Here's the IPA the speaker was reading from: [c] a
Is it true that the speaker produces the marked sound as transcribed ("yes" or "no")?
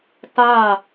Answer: no